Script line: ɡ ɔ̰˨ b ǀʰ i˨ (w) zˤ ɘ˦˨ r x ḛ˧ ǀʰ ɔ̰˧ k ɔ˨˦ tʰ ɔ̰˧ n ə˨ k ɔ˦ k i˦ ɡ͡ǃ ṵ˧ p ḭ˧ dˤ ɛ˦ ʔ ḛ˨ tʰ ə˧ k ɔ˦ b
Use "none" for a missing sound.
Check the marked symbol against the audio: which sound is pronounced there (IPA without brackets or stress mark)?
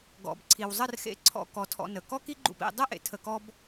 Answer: w